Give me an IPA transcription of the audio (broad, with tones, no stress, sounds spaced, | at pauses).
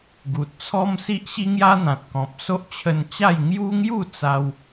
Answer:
ɡ u˨ t̚ t͡sʰ ɔ˦ m s i˦ ʔ ɕ i˦ ŋ j a˦ n̪ ã˨ t̚ k ɔ̃˨ p̚ s o˦ ʔ t͡ɕʰ ə˧ n t͡ɕ a˥˧ j ŋ j u˦ ŋ j u˥˧ t͡s a˦ w